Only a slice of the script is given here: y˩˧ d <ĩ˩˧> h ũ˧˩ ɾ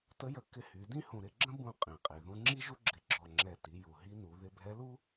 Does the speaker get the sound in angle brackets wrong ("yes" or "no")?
yes